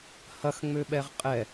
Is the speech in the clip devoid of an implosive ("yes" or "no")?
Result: no